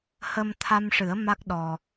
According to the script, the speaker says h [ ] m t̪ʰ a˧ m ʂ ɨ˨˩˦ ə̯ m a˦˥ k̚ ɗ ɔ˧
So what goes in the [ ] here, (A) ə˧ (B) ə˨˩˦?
A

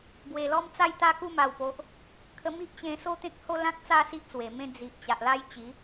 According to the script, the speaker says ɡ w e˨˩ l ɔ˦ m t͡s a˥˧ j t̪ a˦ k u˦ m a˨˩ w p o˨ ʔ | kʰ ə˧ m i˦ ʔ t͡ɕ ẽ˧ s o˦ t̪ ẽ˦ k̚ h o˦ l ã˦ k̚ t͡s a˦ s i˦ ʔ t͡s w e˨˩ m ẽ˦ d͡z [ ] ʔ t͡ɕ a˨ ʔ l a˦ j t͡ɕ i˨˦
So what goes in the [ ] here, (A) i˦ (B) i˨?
B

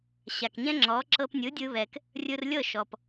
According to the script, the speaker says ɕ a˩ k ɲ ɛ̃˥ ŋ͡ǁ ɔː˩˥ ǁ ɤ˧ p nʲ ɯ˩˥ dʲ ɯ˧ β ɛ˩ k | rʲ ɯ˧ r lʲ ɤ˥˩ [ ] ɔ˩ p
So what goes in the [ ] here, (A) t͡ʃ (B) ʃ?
B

